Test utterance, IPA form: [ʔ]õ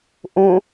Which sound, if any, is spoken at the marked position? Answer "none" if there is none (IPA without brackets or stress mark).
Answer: ʔ